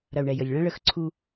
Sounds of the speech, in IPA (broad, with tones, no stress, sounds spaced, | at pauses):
ɾ ɐ˨ u̯ ɳ ɛ˨ j ə˨ lʲ ɭ ɐ̃˦ ɭ ə˨˦ x ǀʰ u˧